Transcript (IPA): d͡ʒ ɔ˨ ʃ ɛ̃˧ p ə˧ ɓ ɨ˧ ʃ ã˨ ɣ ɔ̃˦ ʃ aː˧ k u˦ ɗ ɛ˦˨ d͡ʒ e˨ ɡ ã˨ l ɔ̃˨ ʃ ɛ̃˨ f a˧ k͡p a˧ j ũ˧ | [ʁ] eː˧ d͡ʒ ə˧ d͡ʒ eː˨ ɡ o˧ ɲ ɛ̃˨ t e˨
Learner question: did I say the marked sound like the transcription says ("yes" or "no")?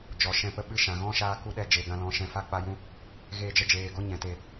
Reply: no